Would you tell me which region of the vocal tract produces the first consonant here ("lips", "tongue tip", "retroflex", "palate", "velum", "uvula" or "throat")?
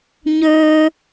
palate